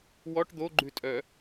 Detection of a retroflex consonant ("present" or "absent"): present